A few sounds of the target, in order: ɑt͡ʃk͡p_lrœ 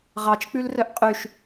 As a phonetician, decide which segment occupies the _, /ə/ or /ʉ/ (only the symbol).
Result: ʉ